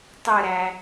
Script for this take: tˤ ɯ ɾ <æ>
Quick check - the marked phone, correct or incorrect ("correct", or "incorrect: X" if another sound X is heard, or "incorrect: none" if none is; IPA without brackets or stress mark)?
correct